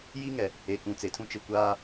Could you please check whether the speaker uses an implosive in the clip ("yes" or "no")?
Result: no